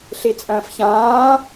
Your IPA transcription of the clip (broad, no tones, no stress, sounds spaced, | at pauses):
ɬ i t͡sʼ ɐ̃ː f ç ãː